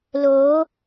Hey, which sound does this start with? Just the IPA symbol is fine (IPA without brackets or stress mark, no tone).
l